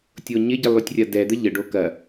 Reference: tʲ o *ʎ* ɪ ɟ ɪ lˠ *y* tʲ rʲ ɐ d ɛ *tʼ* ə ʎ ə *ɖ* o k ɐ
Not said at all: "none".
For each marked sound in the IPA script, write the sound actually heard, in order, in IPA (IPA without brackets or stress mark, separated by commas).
ɲ, y, d̪, ɖ